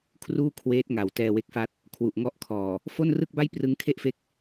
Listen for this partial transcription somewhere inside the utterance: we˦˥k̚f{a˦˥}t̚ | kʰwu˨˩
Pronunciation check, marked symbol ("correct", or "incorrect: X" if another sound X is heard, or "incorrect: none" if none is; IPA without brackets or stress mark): correct